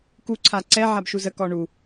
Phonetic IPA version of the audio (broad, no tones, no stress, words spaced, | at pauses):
kuǀʰa ǀɛ ʕabʃuzəkɔ ɳu